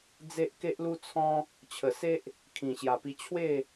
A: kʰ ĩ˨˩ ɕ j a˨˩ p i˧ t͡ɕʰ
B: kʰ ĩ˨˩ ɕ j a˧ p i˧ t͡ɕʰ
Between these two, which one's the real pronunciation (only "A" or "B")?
A